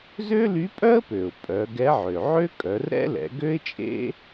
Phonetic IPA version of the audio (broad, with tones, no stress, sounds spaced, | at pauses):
z ø˥ l y˧˥ pʼ œ˥ ə̯ p ø˩ ʊ̯ pʼ œ˩˧ ɡ ɛ˧˥ ʕ ø˩ ʕ ø˥ kʼ œ˩˧ r ɾ ɛ̰˥ l ɛ̰˩˧ ɡ ø˥ ɪ̯ t͡ʃʼ ḛ˥